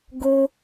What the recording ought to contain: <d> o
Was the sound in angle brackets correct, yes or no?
no